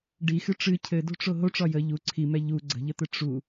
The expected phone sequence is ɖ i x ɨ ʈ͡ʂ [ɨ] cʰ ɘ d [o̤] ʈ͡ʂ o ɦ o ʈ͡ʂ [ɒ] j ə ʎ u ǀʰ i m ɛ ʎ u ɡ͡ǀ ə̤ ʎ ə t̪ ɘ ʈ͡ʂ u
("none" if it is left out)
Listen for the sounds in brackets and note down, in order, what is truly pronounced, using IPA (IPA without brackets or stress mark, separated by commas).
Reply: ɨ, o̤, ɒ